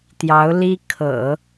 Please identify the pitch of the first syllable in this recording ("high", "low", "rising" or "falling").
rising